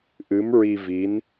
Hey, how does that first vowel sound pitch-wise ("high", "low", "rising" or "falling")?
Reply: rising